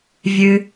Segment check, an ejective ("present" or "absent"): absent